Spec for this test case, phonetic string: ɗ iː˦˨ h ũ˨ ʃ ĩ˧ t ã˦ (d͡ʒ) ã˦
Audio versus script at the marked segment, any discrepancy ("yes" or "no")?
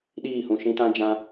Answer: no